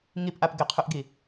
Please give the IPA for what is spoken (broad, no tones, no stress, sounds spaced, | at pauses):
ŋ i p ʔ a p ɡ ɪ qʰ ʉ ʔ ɡ i